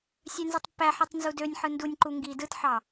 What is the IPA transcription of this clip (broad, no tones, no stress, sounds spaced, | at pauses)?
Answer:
sʲ ø n z ɯ tˤ pː æ ħ i tˤ n z u d ø nʲ ħ ɯ n d u nʲ ǃ u ŋ ɡ i d ɯ t ħ ɑ